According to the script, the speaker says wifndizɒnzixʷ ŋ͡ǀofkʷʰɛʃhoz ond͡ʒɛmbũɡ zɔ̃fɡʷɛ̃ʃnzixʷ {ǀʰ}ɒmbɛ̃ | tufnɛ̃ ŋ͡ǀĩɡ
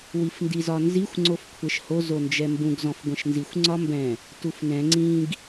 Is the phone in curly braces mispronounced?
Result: yes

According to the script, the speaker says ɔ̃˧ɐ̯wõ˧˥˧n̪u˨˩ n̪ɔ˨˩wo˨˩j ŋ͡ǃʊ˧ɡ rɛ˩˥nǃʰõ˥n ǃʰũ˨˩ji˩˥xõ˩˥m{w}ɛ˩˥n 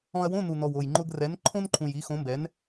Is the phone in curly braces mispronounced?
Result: yes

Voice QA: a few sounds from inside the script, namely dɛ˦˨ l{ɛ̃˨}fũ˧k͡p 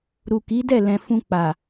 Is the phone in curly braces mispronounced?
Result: no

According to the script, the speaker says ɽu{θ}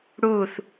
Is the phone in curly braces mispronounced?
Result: no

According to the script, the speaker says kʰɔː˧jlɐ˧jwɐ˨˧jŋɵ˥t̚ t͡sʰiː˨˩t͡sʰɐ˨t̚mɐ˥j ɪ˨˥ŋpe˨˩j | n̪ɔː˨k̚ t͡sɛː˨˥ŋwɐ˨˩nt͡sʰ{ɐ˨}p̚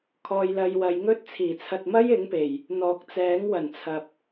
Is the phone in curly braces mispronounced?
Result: no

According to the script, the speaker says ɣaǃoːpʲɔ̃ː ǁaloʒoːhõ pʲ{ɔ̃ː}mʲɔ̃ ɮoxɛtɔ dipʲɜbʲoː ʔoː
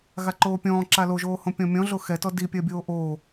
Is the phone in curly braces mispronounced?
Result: yes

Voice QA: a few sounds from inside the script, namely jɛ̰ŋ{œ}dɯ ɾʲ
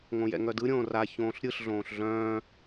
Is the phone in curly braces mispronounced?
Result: no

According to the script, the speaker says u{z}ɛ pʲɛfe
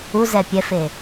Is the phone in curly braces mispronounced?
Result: no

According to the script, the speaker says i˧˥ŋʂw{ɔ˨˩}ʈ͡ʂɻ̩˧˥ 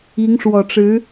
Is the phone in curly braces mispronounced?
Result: no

